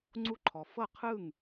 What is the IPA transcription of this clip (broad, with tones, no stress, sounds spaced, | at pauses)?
ŋ͡ǀ u˥˩ ǃʰ ɔ˩ f ɤ˥˩ qʰ ɯ˥˩ ŋ